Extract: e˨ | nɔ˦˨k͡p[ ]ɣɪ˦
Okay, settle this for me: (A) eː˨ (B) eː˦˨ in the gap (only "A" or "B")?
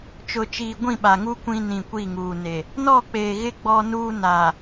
A